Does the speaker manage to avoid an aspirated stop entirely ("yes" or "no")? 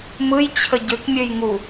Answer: no